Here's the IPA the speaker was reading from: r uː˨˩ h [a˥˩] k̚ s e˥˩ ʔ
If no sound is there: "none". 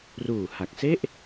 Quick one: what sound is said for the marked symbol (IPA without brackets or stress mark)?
a˨˩